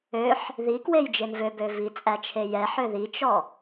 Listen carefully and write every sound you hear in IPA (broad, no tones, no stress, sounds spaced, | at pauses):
ø ħ | ð i k w e j d͡ʒ e n v ø b ø v i t͡sʼ æ t͡ʃʰ e j ɛ ħ ø ð i t͡ʃ ɔ